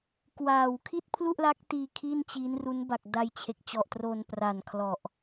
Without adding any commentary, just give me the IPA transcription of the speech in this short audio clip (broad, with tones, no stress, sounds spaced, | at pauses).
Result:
k w aː˨˩ w kʰ i˥˩ t̚ pʰ l u˥˩ ʔ l a˦˥ k̚ t iː˧ kʰ i˥˩ n t͡ɕ i˦˥ n r u˦˥ n b a˨˩ k̚ d a˧ j t͡ɕʰ e˨˩ k̚ t͡ɕ ɔ˨˩ ʔ t r o˧ n p r a˨˩ n kʰ l ɔ˨˩ ʔ